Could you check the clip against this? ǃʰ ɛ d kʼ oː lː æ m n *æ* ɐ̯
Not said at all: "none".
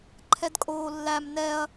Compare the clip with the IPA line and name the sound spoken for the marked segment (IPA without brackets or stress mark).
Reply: ɛ